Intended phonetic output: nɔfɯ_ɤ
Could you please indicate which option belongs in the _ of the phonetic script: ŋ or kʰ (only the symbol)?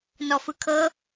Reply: kʰ